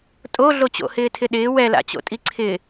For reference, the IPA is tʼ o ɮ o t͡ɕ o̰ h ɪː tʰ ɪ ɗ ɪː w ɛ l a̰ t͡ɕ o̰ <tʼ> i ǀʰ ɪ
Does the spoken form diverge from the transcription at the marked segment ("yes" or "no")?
no